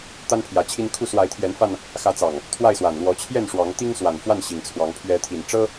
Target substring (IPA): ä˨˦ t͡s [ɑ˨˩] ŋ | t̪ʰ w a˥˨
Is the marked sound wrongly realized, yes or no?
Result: no